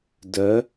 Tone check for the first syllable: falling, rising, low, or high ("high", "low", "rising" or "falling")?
rising